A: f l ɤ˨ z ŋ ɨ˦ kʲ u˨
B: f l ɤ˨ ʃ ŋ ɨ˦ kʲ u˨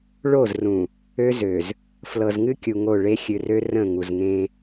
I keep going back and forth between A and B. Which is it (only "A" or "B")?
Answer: A